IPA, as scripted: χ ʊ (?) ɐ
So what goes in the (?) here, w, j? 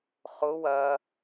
w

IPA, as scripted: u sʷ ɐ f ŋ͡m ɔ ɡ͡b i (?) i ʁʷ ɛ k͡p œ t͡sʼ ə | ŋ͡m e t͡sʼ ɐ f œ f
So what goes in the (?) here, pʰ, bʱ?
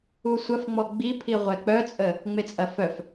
pʰ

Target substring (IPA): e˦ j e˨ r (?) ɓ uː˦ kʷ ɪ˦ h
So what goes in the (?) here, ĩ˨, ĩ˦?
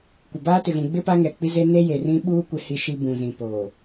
ĩ˦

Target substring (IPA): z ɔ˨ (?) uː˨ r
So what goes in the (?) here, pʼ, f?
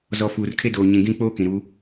f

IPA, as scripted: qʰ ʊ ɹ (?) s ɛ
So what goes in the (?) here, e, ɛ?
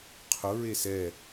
e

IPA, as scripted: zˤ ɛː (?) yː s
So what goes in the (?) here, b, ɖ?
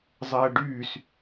ɖ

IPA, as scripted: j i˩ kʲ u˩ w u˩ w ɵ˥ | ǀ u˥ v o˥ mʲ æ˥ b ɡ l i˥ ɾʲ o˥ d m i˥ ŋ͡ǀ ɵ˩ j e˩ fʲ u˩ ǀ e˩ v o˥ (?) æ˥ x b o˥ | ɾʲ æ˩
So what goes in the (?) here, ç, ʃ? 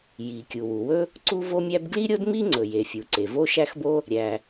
ʃ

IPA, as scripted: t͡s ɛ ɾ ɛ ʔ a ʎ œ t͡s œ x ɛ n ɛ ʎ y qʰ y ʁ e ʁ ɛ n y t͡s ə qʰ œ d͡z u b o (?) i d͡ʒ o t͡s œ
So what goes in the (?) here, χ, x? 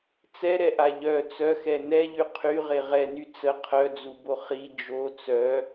χ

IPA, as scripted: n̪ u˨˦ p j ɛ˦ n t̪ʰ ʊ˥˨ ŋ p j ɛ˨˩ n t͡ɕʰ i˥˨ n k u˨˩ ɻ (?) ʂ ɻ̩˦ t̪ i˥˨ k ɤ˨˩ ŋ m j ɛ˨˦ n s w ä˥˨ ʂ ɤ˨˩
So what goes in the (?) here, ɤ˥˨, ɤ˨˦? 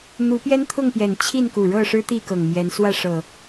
ɤ˥˨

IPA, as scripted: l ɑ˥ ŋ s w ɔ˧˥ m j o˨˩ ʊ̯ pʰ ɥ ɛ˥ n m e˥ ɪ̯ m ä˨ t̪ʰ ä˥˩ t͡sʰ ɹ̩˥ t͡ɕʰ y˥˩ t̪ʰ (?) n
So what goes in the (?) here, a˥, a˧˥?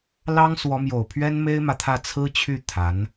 a˧˥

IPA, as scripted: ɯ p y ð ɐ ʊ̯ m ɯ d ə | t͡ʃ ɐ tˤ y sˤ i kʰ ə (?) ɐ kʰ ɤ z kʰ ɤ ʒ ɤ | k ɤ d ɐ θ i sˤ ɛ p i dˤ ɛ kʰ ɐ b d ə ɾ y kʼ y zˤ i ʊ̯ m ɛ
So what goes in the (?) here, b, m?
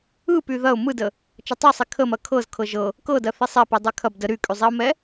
m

